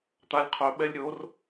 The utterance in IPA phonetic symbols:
t̪alʲ qʰœɓɛlʲ ɾʲor

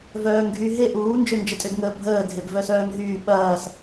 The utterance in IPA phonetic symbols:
vœːŋɡʱy ɦe ʔuːnd͡ʒønd͡ʒə tʼʏdŋəːbʱəː dʱebvœsœːŋɦyː ɓɐːs

